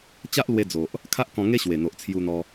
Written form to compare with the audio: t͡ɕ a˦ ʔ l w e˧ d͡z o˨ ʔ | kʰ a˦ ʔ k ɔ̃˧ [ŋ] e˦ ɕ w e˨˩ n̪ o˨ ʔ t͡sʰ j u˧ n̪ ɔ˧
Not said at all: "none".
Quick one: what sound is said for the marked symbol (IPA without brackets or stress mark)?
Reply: ŋ